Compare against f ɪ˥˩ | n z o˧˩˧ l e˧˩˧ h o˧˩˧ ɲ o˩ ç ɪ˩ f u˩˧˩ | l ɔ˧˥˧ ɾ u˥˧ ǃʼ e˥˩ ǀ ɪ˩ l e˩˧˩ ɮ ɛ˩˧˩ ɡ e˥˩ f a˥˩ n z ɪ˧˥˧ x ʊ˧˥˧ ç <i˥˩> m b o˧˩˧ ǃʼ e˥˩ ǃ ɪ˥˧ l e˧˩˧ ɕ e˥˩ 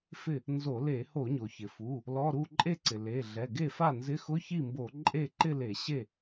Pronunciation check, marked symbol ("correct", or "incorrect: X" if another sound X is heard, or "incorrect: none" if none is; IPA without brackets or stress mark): correct